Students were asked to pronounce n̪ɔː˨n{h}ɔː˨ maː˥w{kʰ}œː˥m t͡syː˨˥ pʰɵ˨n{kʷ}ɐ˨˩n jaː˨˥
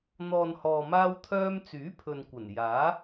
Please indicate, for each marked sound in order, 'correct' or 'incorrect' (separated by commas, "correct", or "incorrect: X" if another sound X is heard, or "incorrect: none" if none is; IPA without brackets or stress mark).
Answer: correct, incorrect: t̪ʰ, correct